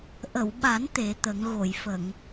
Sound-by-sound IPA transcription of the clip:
ʔ ə˨˩˨ w ɓ a˨˩˦ n t̪ e˨˩˦ t̪ ə˨˩˦ ŋ ɣ o˨˩˨ j f ə˨˩˨ ŋ

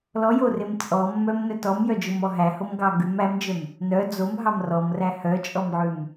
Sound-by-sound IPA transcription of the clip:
l ɔ j o r e m t͡sʼ ɔ mː œ m n œ t ɔ m j œ d͡ʒ o m ɔ ɦ æ h o m ɡ ɑ ɡ ʉ m æ m d͡ʒ œ m | n œ d͡z o m ɦ ɑ m r ɔ m r æ h œ t͡ʃʼ ɔ m ʕ ʉ m

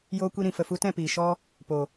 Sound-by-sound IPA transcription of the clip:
j oː˧ kʷ i˧ ɾ ĩ˨ f ə˨ f u˧ t ɛ̃˦˨ p iː˨ ʃ ɔ˧ | p o˨

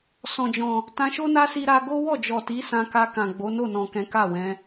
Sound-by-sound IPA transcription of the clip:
s ɔ̃˨ d͡ʒ ɔ̃˨ | t ã˧ ʃ o˦ n a˦ s i˦ ɾ a˦ ɡ o˦ w ɔ˦˨ d͡ʒ ɔ˨ t i˨˦ s ã˧ k a˧ k ã˨ ɡ͡b o˨˦ n o˦˨ n ɔ̃˨ k ɛ̃˨˦ k a˦˨ w ɛ̃˨˦

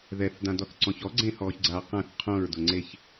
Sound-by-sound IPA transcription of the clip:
ð ɛ θ d ã d ɔ θ ǀ ɔ̃ ç ɔ ɡ͡ǀ ẽ h ɔː ç ɡ͡ǀ aː q ã θ qʰ õ ɹ d ʊ ŋ͡ǀ e ç

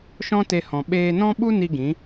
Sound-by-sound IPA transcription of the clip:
ʃ ɔ̃˦ t e˧ h ɔ̃˨ ɓ eː˧ n ɔ̃˦ ɓ u˦ n i˧ ɡ ĩ˨˦

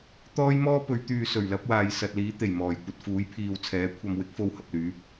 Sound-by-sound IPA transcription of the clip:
t̪ ɔː˥ j m ɔː˥ p ɵ˨˧ ɥ t̪ yː˨ s ɵ˨˩ ɥ l ɐ˨˥ p̚ w aː˨ j s ɐ˨ t̚ l iː˨˥ t̪ e˨˩ j m ɔː˨˩ j kʷ ɐ˧ t̚ f uː˨˥ j pʰ iː˨ w t͡sʰ ɛː˨˥ kʷʰ ɐ˨ m w ɪ˨˥ k̚ f o˨ w h ɐ˨ p̚ l yː˨˥ p̚

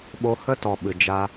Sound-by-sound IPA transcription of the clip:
ɓ o˧ h ə˦ t ɔ˨ ɓ ɨ˨ d͡ʒ a˧

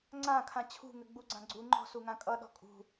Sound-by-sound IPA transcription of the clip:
ŋ͡ǀ ã kʰ ã t͡ɕʰ ṳ ŋ ɘ ɡ͡b u ɡ͡ǀ ã ɡ͡ǀ u ŋ͡ǃ ɔ̤ s u ŋ ã kʼ ʌ ɗ ɔ̤ kʼ ṳ

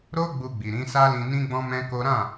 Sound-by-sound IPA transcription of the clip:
ɾ o˦ ɡ͡b u˧ ɡ͡b i˨ ɾ ĩ˨˦ s a˦ l ĩ˧ n ĩ˦ ɡ͡b ɔ̃˦ m ɛ̃˦ k o˦ ɾ ã˦˨

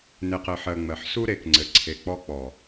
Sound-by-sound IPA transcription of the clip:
n e˨ q ɘ˨ ħ ɜ˨ ŋ͡m ɜ˨ ħ s u˦ ɾ e˨ k ŋ͡ǀ ɘ˨ ǀʰ e˨ k͡p ɔ˦ k͡p ɔ˨

